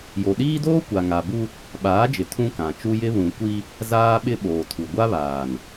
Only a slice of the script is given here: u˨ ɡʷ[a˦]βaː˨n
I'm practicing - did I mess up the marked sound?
no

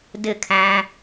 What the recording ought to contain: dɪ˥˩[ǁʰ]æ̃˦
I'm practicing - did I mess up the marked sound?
yes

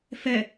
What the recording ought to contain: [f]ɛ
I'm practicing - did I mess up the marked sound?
no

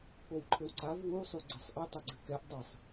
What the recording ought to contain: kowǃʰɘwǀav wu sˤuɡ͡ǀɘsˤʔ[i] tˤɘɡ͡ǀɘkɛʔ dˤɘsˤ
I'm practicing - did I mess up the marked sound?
yes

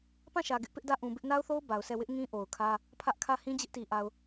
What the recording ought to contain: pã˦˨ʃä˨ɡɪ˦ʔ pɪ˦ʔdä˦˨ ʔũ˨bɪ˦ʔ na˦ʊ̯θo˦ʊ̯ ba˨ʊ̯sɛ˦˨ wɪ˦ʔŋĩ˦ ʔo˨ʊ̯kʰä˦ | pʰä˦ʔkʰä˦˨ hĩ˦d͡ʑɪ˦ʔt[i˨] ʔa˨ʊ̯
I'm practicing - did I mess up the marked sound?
no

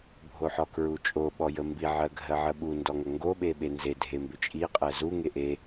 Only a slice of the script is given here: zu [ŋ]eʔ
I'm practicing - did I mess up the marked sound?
no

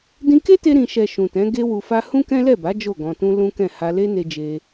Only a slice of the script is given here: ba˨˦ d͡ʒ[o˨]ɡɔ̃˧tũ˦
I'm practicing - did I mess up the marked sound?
yes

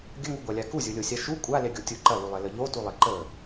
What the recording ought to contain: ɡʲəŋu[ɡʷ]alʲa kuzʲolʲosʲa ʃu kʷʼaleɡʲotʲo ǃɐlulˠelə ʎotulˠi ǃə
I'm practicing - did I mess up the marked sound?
no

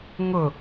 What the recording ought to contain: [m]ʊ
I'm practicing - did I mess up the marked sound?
yes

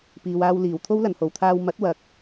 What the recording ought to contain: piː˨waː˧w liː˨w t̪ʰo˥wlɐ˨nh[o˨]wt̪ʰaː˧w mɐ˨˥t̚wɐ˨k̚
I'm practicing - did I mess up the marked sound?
no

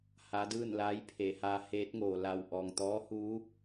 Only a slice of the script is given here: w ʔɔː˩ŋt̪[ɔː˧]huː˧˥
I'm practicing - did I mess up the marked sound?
yes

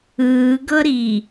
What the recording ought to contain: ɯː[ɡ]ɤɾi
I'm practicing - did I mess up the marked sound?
no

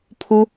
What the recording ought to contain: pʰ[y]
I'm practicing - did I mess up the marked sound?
yes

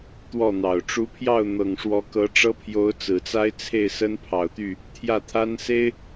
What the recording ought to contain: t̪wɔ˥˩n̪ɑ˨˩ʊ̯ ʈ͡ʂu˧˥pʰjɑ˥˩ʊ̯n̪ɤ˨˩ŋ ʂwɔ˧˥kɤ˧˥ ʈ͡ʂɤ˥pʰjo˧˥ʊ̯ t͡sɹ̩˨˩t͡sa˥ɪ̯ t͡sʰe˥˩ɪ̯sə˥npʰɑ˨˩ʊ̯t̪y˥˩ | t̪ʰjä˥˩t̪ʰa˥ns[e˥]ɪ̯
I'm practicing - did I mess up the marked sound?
no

